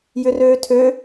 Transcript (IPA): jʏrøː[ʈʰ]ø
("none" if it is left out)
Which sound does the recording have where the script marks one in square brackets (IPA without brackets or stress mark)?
tʰ